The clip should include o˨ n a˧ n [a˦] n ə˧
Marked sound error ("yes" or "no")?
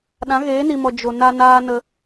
yes